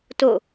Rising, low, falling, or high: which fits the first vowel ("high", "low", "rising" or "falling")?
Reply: falling